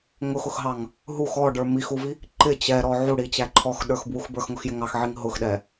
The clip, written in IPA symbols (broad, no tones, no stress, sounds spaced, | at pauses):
ŋ ʊ x ʊ x ɦ ɑ ŋ | ɦ u x ɔ ɖ ə˞ m i x u v i | ǃ ɪ t͡ɕ ɛ ɾ ɔ ʕ u ɽ i t͡ɕ æ ǃʰ ɔ x ɗ ə˞ x b w u x b ə˞ x ŋ ʊ x j ɪ ŋ ɑ x ʕ i ŋ ɦ ʊ x ɗ ɛ